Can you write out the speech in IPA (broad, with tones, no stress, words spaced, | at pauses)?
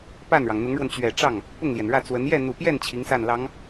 pa˥˩nɻɑ˩ŋn̪ʊ˧˥ŋɻwə˧n t͡ɕɥɛ˨˩ʈ͡ʂɑ˥˩ŋ | pʊ˥˩ŋljɛ˩nɻä˥˩t͡swə˧˥n jɛ˥˩n̪u˨˩pjɛ˥˩n t͡ɕʰi˧˥ŋsa˥˩nlɑ˧˥ŋ